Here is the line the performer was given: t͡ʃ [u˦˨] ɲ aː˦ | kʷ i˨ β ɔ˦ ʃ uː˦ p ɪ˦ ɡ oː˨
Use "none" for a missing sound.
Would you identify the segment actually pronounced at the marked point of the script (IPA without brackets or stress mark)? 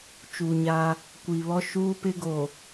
u˨